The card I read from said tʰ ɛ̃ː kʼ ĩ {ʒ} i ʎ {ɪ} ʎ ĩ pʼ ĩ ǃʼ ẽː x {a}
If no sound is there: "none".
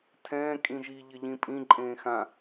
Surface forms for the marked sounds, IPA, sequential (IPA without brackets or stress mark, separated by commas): ʒ, ɪ, ã